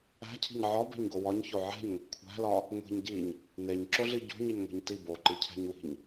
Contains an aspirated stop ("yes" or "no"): yes